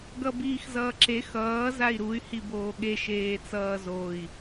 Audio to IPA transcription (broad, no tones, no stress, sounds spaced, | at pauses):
ɡ ʌ b iː x z ʌː ǁ e x ʌː z a i̯ ɾ u y̯ h i b oː ɠ e ʃ eː t͡s ʌː z o i̯